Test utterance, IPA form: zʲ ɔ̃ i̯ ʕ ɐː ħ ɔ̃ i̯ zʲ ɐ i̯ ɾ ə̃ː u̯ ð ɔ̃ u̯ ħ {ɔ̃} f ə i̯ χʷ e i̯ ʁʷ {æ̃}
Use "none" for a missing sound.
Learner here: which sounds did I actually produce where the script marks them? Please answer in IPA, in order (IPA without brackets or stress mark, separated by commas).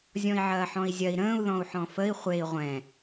ɔ̃, ɛ̃